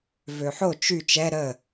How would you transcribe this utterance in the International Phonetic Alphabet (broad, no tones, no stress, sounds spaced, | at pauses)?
v ø ħ o t͡ʃ y t͡ʃ ɛ ɾ ə